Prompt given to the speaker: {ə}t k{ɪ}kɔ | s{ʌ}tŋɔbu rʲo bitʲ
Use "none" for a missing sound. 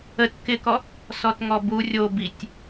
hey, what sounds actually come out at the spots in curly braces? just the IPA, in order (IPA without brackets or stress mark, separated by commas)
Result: ə, ɪ, ɔ